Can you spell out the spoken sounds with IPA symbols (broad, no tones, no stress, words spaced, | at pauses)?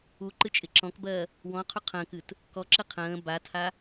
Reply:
uǃɨt͡ʃʼɪ ǁɔ̃kbɜ | wɔ̃qʰu qʰə̃ːkɨt | kɔǁɨ qʰə̃ː batʰa